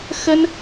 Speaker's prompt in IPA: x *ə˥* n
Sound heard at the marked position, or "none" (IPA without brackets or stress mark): ə˥